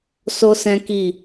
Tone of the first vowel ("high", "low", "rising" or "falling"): high